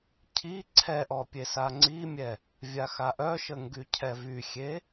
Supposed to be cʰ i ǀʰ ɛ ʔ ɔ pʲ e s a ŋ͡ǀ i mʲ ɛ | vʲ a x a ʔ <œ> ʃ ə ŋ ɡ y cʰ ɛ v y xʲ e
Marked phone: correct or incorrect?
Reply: correct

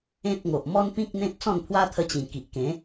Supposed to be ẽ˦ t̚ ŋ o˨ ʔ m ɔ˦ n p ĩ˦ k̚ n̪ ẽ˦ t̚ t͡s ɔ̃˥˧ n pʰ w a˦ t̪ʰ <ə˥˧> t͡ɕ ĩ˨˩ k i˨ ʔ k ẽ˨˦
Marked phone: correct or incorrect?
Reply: incorrect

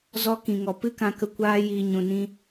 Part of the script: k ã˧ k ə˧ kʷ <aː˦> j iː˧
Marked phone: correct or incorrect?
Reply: correct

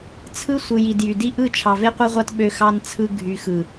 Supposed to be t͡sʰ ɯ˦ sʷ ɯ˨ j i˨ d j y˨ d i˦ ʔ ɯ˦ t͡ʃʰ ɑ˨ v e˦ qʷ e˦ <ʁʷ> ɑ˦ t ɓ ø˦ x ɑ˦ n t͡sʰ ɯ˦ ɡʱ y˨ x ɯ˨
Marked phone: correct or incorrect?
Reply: correct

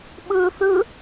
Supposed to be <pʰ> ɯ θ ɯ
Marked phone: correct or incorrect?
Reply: incorrect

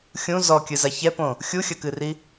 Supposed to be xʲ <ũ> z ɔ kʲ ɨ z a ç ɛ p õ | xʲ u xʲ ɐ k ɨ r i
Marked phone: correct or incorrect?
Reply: correct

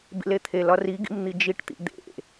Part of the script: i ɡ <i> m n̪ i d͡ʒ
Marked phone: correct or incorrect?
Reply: incorrect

